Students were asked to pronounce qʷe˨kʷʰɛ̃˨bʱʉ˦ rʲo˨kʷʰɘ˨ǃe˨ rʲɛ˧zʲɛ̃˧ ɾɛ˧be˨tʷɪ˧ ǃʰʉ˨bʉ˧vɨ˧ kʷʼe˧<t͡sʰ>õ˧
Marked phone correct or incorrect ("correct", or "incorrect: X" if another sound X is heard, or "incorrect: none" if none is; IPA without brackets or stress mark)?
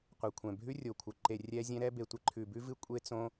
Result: incorrect: t͡s